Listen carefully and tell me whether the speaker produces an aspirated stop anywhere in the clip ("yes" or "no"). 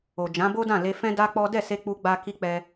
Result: no